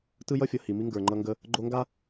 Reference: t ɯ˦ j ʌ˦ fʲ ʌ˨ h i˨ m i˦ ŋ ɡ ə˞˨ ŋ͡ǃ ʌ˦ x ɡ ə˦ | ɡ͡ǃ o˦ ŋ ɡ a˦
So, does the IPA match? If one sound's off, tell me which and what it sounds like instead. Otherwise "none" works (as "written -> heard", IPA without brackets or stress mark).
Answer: x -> ŋ